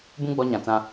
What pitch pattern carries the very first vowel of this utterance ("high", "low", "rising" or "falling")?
high